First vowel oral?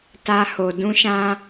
yes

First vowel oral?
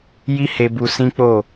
yes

